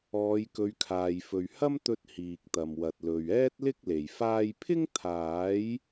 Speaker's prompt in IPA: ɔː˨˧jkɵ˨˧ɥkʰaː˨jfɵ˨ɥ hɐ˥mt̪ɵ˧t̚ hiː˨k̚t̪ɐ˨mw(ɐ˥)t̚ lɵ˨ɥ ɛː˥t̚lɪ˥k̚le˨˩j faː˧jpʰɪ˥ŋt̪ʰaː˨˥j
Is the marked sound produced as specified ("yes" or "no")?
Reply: no